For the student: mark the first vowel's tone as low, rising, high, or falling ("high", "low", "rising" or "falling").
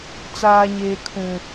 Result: high